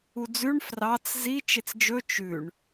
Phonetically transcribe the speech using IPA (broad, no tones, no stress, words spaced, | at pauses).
ud͡zʉɳ frɑt͡s zi t͡ʃet͡sd͡ʒɵ t͡ʃʉɳ